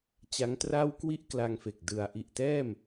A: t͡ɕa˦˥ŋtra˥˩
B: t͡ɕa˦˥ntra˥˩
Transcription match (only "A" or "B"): A